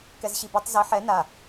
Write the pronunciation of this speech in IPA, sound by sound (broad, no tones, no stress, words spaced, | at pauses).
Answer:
kɛzɕibetˤ zɘ ħɛ na